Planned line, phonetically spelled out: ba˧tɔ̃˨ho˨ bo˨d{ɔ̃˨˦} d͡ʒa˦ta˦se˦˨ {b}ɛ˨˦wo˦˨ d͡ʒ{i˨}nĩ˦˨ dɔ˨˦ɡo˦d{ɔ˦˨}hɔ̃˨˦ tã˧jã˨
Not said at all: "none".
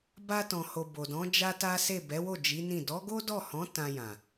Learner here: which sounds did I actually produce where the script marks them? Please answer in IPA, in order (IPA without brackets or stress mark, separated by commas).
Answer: ɔ̃˨˦, b, i˨˦, ɔ˦˨